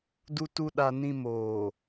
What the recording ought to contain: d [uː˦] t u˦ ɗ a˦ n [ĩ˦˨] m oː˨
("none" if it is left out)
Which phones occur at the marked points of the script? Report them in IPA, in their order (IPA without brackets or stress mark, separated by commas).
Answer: u˦, ĩ˦